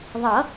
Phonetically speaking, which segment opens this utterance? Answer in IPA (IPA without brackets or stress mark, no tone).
ðˤ